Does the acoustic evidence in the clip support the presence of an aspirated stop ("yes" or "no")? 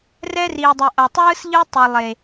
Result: no